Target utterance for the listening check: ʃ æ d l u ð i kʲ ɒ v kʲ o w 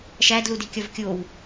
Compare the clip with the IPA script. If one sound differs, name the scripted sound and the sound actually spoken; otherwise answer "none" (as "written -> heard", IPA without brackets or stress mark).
ð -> d